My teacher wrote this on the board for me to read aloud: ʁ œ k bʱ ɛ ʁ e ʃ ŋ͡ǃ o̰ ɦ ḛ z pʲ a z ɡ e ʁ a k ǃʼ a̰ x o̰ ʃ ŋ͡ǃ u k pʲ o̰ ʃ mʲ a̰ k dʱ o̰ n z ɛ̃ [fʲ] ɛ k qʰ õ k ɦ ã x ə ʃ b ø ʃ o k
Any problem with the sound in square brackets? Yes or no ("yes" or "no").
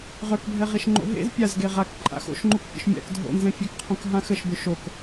no